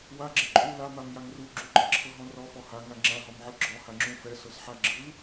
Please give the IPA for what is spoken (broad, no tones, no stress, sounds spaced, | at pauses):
w a ɡ͡ǁ ɛ ǃʼ u l a m a m j a ŋ r u ɡ͡ǁ u ɡ͡ǃ e ǁʰ ɤ ɦ ɔ̃ r ɔ f ɔ h a ŋ a ŋ͡ǁ ã ɦ ɔ m ʕ ɯ ɡ͡ǁ ɔ h a ŋ͡ǁ ũ f ɛ s ɤ s ħ a ɡ͡ǁ ɯ